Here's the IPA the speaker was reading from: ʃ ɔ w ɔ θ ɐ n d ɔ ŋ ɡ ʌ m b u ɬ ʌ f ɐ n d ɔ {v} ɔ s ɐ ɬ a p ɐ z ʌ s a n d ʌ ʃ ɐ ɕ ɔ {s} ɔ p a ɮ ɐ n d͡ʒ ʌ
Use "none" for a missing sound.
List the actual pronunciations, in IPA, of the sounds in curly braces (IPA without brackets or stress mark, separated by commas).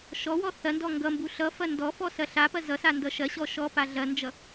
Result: f, ʃ